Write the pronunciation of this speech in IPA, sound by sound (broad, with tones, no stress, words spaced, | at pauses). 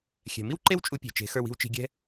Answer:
xʲɛ̤˨mi˦wǃe˦w t͡ʃʼu˧pʲe̤˨ t͡ʃe̤˨˦xə˞˧wi̤˧w t͡ʃi̤˧ɡʲɛ̤˦